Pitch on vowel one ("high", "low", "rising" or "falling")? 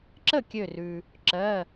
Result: falling